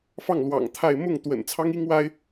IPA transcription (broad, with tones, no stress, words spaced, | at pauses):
fɑ˥˩ŋlwɑ̰˨˩ŋ t̪ʰa˥˧ɪ̯ mʊ˥˩ŋ t̪wə̰˨˩nt͡sʰɑ˥ŋ i˥ŋwa˥ɪ̯